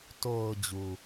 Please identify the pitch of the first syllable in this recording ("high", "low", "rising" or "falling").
low